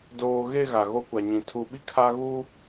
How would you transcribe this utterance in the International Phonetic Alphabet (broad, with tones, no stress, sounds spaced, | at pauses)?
d oː˨ ɣ e˦˨ ɣ a˨ ɣ o˦ kʷ a˨ ɲ ĩ˨ tʰ u˨ ɓ i˦ kʰ a˦ ɣ uː˦